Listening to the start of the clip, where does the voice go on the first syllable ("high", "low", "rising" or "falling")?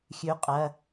rising